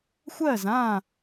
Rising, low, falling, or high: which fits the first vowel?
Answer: falling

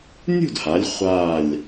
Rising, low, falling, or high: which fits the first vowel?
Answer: falling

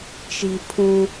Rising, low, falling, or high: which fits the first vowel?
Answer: low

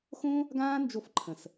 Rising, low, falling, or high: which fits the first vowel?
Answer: high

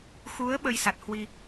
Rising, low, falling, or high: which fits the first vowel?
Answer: rising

